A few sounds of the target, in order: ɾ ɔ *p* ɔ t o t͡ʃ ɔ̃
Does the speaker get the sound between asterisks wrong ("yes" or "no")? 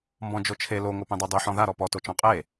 no